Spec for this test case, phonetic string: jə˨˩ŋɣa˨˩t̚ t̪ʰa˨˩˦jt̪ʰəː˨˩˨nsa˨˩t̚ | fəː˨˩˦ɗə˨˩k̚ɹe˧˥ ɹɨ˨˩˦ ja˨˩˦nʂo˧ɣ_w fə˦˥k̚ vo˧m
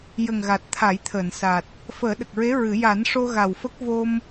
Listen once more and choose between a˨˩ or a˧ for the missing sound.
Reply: a˨˩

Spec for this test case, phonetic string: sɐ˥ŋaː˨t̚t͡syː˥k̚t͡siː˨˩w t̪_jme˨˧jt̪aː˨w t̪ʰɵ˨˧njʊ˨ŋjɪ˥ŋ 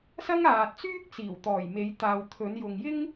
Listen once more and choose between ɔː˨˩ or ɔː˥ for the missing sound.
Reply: ɔː˨˩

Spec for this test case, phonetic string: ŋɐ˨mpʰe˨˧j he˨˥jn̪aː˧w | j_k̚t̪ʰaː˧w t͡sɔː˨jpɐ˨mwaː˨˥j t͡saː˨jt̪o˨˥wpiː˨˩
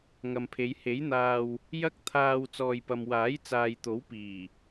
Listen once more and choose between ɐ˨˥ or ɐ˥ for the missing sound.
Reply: ɐ˥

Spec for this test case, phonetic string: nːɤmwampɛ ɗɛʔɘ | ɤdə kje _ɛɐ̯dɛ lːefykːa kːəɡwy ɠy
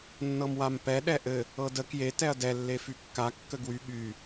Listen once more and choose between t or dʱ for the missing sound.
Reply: t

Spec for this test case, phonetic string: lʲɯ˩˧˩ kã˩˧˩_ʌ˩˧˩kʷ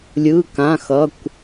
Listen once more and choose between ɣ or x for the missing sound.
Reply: x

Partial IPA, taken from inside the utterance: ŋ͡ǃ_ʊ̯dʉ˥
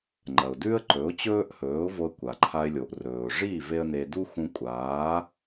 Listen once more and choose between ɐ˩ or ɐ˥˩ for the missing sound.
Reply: ɐ˩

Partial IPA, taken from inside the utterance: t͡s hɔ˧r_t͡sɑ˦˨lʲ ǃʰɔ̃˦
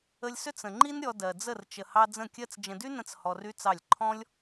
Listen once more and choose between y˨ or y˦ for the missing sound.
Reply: y˦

